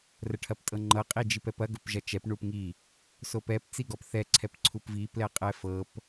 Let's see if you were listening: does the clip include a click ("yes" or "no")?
yes